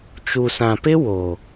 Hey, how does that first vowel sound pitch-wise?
low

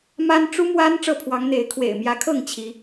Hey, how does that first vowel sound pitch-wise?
high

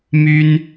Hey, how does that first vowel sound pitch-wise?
high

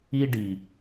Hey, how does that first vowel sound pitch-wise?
high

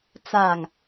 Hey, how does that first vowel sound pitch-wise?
low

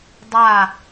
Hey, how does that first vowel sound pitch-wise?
falling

